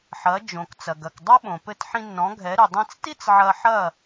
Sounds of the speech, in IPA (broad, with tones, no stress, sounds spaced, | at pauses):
ħ ɐ˩˥ d͡ʒ õ˩ k t͡s ɐ˩ ɡ ɐ˩ k dˤ ɐ˥ ɓ õ˩ p ɘ˧ t ħ ĩ˧ nː ɔ̃˩˥ ɡʱ ɛ˩˥ ɾ ɨ˩ dˤ ẽ˧ t͡s t i˥ t͡s ʕ ɐ˧ ħ ɐ˥˩